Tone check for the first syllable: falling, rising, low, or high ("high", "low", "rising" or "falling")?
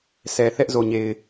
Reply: low